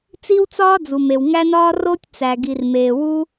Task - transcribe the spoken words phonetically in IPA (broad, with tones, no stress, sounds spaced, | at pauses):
t͡s i˦ w t͡s ɒː˦ d͡z u˨ m e˨ w ŋ æ˦ n ɒː˦ r o˦ tʲ t͡s æ˨ ɡ i˨ r m eː˨ w u˦